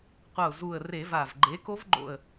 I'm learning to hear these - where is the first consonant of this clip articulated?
uvula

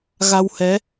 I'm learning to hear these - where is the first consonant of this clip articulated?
velum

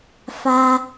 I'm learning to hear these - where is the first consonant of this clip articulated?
lips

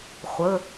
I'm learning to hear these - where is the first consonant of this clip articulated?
uvula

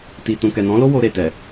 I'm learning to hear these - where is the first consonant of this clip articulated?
tongue tip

